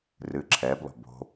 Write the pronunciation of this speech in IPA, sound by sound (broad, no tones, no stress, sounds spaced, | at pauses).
r ɨ ǁʰ ɛː b lˠ o̤ b o̤